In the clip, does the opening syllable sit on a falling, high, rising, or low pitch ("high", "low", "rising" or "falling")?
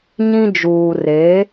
high